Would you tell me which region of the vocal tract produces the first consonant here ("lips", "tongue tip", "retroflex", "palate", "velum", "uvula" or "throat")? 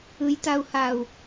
palate